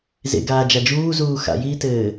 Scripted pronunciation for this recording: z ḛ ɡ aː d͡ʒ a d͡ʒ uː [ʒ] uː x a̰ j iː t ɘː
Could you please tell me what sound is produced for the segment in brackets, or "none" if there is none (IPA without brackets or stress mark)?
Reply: z